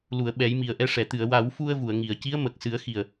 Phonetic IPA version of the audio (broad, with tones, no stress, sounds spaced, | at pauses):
l u˨˩˨ ə̯ ɓ ɛ˨˩˦ j m i˨˩ ə̯ ʔ ɛ˧ ʂ ɛ˨˩˨ t̪ ɨ˨˩˨ ə̯ w a˨˩˦ w f u˧ ə̯ v u˨˩˨ ə̯ ŋ i˨˩˨ ə̯ c i˧˥ ə̯ m ə˨˩ k̚ s ɨ˨˩˦ ə̯ x i˨˩ ə̯